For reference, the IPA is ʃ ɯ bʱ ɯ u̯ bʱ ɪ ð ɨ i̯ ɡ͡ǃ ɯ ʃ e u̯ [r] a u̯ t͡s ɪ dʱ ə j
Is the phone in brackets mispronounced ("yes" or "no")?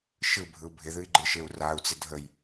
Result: no